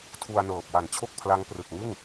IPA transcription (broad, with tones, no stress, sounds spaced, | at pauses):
tʰ u˧ a̯ n ɤː˨˩ p̚ w a˨˩ n t͡ɕʰ o˥˩ k̚ pʰ l a˦˥ ŋ p r ɯ˨˩ k̚ ŋ ɯ˥˩ ŋ